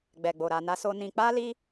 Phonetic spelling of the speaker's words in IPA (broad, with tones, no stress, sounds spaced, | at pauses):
ɡ͡b ɛ˨ ɡ͡b o˨ ɾ a˨ n a˧ s o˧ n ĩ˧ k͡p a˦ l i˦